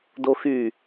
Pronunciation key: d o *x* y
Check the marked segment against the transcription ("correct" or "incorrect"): correct